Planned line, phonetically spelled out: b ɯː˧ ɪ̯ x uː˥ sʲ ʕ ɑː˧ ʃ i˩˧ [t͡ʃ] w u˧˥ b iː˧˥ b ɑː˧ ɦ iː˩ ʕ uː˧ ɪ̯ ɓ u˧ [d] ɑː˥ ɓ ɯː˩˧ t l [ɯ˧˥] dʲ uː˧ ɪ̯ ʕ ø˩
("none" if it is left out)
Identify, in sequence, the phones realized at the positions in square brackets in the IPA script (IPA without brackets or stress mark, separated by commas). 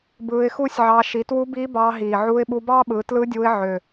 t, b, ɯ˧˥